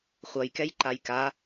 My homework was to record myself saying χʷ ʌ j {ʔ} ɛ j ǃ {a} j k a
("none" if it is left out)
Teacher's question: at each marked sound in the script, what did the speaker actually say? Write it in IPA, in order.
k, a

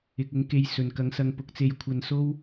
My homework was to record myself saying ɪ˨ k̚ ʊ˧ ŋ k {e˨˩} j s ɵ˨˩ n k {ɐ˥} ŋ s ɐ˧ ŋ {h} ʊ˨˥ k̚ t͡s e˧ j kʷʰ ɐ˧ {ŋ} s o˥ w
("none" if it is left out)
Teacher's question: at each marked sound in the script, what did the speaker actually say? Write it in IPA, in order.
e˧, ɐ˨, p, n

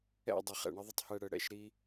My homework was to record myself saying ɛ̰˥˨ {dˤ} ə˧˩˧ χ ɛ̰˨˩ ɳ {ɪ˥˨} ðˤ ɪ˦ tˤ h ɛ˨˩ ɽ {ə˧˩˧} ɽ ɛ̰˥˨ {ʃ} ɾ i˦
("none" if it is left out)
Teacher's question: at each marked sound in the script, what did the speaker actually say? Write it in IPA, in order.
dˤ, ɪ˦, ə˧˩˧, ʃ

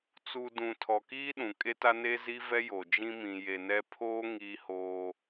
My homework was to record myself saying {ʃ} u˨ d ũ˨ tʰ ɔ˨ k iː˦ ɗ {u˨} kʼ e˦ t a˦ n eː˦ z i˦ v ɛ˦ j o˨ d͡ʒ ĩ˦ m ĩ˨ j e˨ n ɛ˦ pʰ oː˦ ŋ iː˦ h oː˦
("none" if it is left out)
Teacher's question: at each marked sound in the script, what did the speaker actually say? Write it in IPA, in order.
t͡s, ũ˨

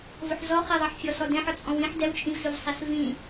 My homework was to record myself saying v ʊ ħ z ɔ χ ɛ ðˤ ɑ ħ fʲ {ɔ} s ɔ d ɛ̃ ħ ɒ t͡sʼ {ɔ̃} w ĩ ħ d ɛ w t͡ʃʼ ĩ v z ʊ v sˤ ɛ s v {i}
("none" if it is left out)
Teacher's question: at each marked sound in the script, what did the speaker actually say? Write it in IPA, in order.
ɔ, ɔ̃, ĩ

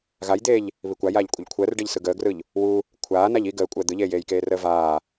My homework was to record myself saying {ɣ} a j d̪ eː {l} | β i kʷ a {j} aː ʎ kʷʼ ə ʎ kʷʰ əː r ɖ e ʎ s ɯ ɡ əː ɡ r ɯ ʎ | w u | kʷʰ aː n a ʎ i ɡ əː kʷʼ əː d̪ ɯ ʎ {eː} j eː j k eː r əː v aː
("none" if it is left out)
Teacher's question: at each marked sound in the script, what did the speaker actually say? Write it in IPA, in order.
ɣ, ʎ, j, eː

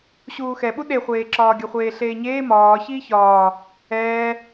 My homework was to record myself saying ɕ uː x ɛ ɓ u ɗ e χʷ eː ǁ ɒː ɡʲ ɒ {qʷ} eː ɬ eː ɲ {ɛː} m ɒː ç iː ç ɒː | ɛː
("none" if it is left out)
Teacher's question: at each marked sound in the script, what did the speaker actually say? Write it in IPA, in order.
χʷ, eː

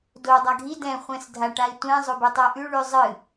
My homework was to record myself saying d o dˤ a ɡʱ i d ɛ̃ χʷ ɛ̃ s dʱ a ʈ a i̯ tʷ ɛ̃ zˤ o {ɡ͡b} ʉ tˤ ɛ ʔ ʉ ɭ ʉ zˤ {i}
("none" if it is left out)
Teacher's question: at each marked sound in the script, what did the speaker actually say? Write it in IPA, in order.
b, ɨ

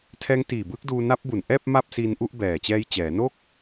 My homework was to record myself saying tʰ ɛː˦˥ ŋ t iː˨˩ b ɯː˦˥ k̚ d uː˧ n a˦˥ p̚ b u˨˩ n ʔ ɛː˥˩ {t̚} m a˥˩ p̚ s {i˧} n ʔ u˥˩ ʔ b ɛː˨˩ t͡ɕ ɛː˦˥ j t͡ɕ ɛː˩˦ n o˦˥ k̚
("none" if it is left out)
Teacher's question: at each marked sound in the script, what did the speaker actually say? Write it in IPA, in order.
p̚, i˧

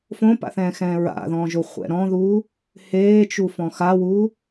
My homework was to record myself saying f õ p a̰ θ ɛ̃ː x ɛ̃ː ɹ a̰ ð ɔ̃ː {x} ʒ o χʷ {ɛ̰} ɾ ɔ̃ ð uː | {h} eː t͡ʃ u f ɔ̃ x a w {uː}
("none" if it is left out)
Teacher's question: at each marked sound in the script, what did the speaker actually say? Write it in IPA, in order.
none, ɛ̰, h, uː

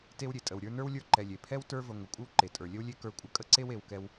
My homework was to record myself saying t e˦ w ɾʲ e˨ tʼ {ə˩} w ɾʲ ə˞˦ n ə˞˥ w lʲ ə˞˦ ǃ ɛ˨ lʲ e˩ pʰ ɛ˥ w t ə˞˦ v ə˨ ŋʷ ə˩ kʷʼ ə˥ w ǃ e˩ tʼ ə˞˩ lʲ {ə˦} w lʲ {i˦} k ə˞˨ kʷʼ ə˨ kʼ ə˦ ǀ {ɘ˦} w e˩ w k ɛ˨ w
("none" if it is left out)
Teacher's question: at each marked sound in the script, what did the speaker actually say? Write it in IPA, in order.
ə˩, ə˦, e˦, e˦

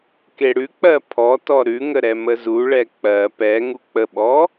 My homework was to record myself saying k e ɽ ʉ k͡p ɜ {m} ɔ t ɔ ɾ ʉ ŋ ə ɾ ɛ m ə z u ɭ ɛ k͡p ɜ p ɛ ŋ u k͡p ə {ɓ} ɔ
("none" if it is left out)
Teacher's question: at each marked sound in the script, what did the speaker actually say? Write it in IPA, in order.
pʰ, ɓ

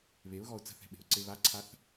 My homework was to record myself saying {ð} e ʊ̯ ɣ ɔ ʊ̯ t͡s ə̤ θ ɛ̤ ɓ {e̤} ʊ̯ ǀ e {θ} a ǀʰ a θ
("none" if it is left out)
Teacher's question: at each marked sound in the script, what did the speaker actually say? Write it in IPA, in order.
β, e̤, β

